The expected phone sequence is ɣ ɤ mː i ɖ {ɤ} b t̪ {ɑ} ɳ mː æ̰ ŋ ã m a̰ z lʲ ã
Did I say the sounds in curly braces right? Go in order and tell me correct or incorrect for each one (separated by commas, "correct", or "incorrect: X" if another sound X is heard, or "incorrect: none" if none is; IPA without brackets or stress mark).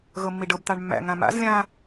correct, correct